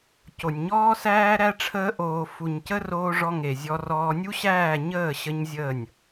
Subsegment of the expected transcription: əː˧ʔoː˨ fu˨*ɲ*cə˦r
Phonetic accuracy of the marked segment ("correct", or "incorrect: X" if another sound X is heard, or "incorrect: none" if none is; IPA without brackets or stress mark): correct